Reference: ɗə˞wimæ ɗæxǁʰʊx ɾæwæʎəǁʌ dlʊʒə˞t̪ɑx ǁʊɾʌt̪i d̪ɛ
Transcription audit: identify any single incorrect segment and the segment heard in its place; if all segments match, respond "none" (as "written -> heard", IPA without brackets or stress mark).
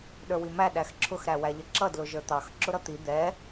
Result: none